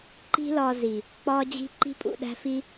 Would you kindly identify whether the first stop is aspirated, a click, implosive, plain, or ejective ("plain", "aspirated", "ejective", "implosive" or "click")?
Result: click